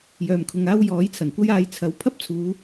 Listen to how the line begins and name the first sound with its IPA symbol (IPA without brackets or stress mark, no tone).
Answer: j